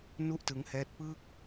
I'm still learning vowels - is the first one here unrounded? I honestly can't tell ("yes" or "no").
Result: no